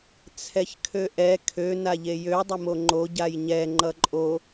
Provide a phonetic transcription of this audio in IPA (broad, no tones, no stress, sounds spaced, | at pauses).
t͡sʰ ɛ ç kʰ ø ʔ ɛ kʰ ø n a ʎ e j ø dˤ e m o ŋ͡ǃ o ɟ a j ɲ ɛ ŋ͡ǃ ʌ ǃʼ o